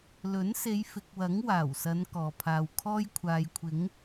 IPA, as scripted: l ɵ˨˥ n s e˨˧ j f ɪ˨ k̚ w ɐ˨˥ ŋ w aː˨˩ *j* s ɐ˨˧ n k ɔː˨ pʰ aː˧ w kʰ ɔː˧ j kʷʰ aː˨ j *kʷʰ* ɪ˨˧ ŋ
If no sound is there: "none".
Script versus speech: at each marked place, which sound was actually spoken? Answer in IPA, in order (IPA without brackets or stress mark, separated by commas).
w, kʷʰ